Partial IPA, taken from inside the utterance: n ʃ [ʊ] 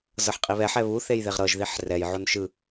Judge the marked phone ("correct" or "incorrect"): incorrect